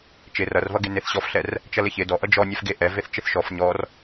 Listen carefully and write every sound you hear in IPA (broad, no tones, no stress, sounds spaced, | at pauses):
t͡ʃ ɪ r ʌ r v ʌ ɡ e n e θ ɕ ɔ f ɬ ɛ r | t͡ʃ ʌ l ɪ ç ɪ d ɔ ʔ ʌ d͡ʒ ɔ nʲ ɛ f ɡ e ʔ ɛ v e θ t͡ʃ ɪ θ ʃ ɔ f ɲ ɔ r